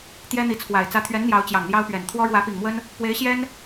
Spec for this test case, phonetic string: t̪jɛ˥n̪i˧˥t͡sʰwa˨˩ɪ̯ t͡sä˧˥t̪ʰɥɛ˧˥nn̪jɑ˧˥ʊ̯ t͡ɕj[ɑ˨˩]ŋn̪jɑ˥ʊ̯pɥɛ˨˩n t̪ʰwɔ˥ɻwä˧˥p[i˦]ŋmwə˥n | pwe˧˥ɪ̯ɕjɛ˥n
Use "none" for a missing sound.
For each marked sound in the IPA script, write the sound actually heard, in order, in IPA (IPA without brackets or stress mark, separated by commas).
ɑ˨˩, i˨˩